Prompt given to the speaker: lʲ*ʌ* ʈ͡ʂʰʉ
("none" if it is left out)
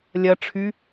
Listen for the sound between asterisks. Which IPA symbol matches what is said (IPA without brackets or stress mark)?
ʌ